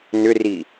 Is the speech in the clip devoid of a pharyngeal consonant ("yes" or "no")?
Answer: yes